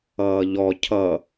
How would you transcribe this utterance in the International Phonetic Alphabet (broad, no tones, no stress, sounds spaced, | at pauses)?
ʌː ʎ ɔ cʰ ʌ